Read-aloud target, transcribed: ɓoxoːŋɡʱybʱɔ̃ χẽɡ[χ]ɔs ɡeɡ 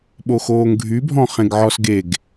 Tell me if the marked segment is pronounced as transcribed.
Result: no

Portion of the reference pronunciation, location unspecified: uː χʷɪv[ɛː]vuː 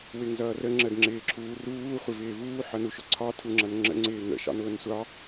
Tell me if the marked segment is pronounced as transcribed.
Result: no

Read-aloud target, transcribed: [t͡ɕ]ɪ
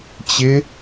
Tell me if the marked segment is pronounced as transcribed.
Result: yes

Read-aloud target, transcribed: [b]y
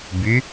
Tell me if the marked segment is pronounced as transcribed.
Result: yes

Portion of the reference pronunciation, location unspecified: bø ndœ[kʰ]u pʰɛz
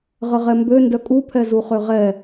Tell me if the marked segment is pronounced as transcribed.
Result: no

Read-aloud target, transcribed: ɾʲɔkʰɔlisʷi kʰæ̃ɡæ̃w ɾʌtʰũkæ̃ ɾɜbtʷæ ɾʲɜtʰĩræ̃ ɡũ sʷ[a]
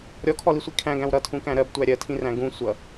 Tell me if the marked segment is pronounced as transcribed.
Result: no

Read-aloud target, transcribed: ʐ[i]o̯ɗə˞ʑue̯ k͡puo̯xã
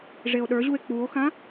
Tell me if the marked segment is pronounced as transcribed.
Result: no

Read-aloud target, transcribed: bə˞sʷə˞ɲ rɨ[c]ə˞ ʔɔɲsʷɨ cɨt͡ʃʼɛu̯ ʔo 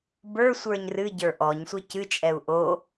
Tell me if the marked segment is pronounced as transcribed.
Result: no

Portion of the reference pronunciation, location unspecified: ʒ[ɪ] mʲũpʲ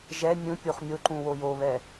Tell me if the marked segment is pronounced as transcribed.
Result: no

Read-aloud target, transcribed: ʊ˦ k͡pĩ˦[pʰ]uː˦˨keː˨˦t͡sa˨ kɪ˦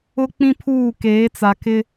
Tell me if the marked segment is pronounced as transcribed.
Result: yes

